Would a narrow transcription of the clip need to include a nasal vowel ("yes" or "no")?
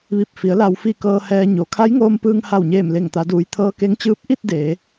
no